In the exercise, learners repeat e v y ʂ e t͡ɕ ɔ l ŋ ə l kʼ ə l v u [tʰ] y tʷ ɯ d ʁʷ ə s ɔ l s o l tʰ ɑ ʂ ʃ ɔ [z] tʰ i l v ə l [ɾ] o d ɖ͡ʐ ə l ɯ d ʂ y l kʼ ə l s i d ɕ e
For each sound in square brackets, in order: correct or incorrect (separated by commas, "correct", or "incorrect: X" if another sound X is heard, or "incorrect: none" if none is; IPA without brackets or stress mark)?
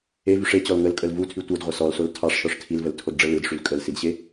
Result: correct, incorrect: ʂ, incorrect: tʰ